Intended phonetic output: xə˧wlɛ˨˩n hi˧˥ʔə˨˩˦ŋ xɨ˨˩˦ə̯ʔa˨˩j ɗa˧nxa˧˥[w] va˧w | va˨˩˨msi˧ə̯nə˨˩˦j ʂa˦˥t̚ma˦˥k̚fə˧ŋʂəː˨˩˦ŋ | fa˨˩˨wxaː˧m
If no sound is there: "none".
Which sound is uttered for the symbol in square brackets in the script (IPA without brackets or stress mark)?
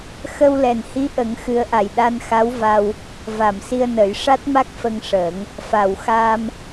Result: w